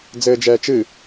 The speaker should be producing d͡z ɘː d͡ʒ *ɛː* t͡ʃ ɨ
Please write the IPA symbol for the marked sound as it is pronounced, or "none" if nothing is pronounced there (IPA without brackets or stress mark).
ɛː